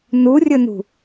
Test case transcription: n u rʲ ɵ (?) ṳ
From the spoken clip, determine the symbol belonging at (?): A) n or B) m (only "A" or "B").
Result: A